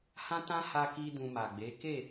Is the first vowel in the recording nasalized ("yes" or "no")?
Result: yes